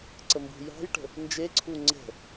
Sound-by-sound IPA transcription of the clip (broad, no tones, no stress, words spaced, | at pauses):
ǀəmbṳjɑ̤jʈə̤ | nd͡ʒeǀʰu ŋ͡ǀə̤